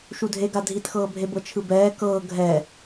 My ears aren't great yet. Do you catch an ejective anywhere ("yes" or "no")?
no